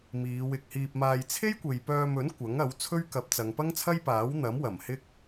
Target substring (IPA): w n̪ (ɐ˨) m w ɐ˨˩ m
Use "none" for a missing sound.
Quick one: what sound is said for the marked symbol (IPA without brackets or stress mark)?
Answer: ɐ˨˥